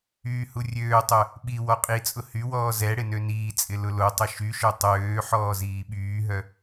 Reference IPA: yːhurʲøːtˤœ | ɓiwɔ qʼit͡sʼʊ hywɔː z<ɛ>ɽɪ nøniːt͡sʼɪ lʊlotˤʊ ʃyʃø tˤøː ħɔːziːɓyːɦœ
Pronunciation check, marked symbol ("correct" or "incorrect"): correct